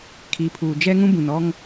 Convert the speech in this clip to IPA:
kʰ i˨˦ pʰ uː˨ d͡ʒ ɛ˦ ŋ ũ˦ b ũ˨ n ɔ˦ ŋ

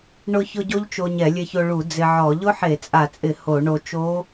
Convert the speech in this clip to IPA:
ɳ ʊ˧ ç ʊ˧ ɟ o˦˥ ʎ t͡ʃ o˧ ɲ ɛ˧˩˧ lʲ ɛ˧ ç o˧ ɭ u˧˩˧ d͡z ɪ˧ ʕ ɔ˧˩˧ ʎ ʊ˦˥ ħ e˧˩˧ t͡sʼ a˧˩˧ t͡sʼ ɪ˧˩˧ h o˧˩˧ ɳ o˧ t͡ʃ o˦˥

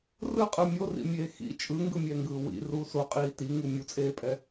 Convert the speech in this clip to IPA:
r ɯ qʼ ɯ mʲ o r ḭ mʲ eː x ḭ t͡ʃʼ ɯ ŋ ɡ ɯ mʲ ɛː ŋ ɡ ɯː w ḭ r uː s o qʼ iː t i ŋ u mʲ u t͡sʼ eː pʼ ɛ

